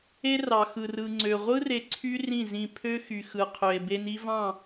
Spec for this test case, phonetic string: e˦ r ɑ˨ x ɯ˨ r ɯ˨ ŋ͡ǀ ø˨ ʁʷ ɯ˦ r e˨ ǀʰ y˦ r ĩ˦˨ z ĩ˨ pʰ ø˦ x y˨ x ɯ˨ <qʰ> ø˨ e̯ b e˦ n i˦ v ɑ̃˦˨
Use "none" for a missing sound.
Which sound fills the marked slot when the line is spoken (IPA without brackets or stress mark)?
qʰ